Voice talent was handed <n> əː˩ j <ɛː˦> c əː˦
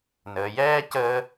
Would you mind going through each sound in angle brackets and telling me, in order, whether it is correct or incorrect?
correct, correct

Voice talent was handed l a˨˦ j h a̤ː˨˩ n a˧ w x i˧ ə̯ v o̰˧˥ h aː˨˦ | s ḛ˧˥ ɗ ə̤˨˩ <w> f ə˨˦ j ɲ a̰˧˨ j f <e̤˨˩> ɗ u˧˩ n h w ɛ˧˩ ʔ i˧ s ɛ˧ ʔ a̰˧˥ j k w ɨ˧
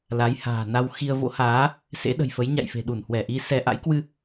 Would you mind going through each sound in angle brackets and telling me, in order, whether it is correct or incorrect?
incorrect: j, correct

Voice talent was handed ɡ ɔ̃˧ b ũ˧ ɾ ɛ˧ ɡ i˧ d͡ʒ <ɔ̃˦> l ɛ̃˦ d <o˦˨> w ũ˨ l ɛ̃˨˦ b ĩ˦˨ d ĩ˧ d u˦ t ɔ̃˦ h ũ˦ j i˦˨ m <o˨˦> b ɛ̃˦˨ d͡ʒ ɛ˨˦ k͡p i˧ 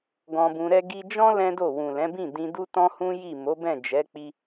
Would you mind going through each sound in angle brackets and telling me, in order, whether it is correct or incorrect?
correct, correct, correct

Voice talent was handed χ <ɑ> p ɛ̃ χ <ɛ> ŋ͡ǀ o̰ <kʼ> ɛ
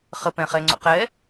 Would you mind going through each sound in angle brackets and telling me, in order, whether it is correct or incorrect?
incorrect: ə, correct, incorrect: q

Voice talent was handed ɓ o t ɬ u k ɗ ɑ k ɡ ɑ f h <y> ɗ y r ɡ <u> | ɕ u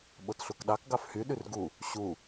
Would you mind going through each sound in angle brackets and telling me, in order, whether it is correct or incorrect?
correct, correct

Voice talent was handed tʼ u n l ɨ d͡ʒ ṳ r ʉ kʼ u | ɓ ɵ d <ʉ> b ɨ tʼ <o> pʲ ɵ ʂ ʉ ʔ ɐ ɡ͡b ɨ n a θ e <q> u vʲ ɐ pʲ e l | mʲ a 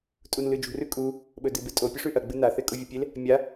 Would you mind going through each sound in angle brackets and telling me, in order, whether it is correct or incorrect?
incorrect: ɨ, correct, incorrect: kʼ

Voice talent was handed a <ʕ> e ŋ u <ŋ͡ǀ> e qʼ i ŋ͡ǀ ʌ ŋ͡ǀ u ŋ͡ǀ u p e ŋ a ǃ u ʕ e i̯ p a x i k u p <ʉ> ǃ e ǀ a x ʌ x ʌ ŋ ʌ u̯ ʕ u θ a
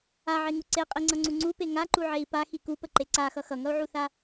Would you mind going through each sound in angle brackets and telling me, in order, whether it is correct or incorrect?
correct, incorrect: ǀ, incorrect: ə

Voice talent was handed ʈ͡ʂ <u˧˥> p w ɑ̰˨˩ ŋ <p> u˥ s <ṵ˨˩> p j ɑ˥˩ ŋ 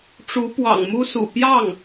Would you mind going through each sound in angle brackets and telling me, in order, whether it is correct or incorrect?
correct, incorrect: m, correct

